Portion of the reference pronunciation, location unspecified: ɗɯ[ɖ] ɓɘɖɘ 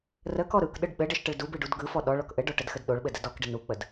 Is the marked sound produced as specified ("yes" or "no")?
yes